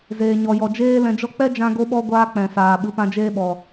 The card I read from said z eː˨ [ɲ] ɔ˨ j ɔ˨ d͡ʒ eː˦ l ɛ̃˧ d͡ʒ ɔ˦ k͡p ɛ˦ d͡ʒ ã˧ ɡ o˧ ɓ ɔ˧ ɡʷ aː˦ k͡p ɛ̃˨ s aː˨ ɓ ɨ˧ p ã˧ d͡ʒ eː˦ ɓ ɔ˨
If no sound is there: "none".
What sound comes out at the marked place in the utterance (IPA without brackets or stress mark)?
ɲ